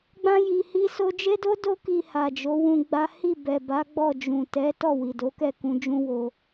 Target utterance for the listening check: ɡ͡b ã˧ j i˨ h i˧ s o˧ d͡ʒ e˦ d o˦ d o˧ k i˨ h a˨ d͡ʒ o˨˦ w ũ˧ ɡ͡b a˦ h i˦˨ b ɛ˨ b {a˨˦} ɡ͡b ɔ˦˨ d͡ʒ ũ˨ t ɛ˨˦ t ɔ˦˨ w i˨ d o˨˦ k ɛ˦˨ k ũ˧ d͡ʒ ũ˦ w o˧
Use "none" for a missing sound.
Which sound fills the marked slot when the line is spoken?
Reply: a˨˦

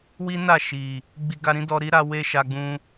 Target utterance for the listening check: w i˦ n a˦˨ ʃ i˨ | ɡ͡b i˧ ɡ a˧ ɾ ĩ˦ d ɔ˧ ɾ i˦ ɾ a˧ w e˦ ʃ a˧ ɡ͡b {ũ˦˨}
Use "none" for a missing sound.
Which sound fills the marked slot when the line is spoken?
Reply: ũ˧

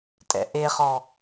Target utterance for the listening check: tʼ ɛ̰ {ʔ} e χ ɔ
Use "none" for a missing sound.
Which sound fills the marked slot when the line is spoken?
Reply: ʔ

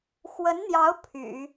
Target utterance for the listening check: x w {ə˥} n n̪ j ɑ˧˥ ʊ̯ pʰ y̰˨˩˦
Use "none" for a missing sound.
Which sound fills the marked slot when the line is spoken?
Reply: ə˧˥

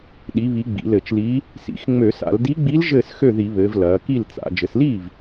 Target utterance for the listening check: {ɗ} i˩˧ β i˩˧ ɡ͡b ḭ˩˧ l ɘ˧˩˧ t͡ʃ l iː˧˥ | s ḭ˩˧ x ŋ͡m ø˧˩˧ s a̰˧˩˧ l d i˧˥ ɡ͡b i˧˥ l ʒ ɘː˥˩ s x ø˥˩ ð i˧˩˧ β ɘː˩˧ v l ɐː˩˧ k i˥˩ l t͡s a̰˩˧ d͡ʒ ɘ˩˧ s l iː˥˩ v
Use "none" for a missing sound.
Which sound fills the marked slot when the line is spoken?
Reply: ɗ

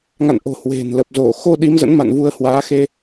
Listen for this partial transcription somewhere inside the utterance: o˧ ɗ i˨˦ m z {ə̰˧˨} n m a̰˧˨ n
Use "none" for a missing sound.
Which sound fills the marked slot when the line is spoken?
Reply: ə̰˧˥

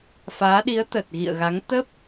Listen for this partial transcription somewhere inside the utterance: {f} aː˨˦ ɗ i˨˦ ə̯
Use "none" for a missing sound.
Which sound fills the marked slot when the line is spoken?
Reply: f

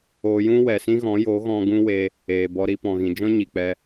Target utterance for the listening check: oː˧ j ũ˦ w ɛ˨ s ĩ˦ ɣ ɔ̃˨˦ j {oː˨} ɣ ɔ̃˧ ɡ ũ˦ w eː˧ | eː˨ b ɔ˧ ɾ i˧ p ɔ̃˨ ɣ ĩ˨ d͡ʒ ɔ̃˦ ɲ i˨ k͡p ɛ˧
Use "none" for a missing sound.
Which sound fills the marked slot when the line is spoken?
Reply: oː˨˦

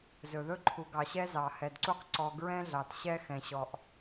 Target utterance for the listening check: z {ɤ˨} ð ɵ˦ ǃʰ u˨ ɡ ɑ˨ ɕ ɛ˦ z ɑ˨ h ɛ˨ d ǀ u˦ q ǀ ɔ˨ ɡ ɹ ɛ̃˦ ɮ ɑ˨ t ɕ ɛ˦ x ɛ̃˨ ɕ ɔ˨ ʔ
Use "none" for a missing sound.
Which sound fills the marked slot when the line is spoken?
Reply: ɵ˨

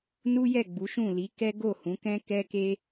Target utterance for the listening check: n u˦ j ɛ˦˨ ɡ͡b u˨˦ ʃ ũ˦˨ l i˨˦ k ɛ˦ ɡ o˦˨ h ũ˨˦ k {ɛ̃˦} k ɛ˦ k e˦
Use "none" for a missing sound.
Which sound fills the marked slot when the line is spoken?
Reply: ɛ̃˦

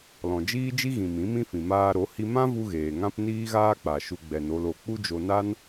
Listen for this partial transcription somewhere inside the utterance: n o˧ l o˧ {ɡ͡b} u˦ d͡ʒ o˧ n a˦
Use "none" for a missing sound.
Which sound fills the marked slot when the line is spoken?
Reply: k͡p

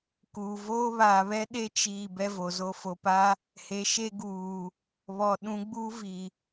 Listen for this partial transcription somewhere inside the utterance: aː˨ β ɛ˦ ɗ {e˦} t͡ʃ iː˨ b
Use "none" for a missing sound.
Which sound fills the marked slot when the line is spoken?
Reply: e˦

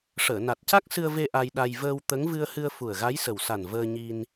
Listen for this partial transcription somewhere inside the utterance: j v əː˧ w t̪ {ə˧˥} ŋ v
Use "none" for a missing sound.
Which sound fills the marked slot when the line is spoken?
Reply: ə˧˥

